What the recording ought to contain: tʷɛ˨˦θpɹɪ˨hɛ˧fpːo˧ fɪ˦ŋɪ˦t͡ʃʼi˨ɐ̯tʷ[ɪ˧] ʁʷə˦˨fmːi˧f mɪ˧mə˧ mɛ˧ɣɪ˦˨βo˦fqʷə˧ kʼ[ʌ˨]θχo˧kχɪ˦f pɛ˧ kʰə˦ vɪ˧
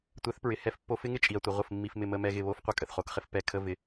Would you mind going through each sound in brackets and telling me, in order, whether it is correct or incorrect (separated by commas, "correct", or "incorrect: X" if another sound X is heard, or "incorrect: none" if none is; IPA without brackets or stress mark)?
incorrect: ɪ˨, incorrect: ə˨